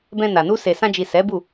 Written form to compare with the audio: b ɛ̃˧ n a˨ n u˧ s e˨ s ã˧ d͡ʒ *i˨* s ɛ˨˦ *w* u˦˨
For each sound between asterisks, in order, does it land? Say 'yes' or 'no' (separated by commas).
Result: yes, no